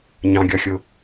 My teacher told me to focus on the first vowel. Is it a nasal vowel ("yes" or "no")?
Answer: yes